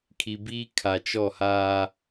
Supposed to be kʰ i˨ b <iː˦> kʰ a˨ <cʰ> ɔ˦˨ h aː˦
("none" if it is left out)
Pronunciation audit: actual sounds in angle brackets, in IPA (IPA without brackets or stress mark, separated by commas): iː˦, t͡ʃ